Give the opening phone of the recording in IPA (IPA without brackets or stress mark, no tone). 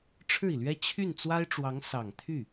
ʈ͡ʂʰ